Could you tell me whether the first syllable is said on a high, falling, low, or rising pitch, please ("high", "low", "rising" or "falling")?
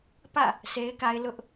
falling